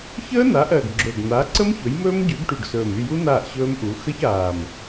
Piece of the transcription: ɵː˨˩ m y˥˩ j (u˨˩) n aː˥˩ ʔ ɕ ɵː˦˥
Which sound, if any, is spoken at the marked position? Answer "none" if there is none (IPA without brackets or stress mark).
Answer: u˦˥